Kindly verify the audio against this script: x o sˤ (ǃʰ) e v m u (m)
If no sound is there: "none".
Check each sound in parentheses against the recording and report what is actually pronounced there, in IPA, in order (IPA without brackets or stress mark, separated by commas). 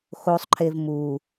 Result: ǃʰ, none